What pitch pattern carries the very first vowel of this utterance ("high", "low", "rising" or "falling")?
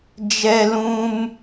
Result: high